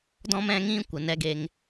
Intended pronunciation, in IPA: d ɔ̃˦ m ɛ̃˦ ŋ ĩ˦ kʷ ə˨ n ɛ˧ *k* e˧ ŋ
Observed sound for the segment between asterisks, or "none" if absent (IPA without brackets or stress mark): ɡ